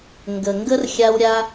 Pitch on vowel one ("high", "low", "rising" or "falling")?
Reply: low